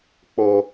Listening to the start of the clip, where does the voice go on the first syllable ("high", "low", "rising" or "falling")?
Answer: high